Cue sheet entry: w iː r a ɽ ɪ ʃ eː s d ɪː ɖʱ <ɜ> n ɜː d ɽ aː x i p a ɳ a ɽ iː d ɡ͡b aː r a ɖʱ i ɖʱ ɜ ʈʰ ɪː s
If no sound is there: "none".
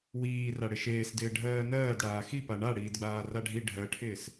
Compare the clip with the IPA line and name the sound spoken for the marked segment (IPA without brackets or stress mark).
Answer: ɜː